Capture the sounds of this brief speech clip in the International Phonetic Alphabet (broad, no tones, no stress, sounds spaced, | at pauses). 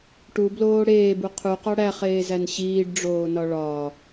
ʈ u b l oː ɽ eː b u qʰ u q ɒ ɽ æ χ eː z æ n ɕ iː ɖ ɖ͡ʐ oː n ɒ ɭ ɒ